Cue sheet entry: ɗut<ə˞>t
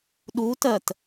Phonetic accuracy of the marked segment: incorrect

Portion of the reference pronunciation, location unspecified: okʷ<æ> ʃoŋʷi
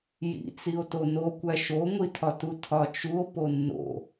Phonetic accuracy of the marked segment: correct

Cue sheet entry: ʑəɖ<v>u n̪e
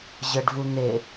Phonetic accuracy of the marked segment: correct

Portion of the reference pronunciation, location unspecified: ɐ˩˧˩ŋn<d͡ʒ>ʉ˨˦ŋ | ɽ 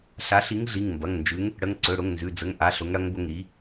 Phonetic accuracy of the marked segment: correct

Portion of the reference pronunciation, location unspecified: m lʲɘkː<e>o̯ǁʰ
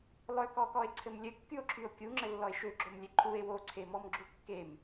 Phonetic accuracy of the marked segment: incorrect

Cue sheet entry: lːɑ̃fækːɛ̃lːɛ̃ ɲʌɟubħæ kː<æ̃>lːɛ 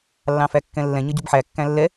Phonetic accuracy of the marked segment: correct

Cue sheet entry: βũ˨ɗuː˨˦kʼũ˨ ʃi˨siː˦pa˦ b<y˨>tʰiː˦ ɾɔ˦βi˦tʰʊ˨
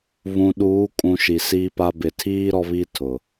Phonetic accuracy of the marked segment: incorrect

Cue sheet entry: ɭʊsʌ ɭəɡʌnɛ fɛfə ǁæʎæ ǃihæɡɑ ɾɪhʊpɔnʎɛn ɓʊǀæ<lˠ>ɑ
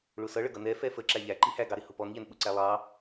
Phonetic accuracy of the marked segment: correct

